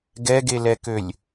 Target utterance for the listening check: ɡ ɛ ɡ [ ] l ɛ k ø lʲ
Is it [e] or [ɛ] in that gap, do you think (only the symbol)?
e